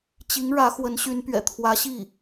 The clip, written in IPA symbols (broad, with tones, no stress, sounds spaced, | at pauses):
t͡ɕ i˧˥ ŋ ɻ ä˧˥ x w ə˧˥ n ɕ y˧˥ n p ɥ ɛ̰˨˩ t̪ʰ w ä˧˥ ɕ i˥˩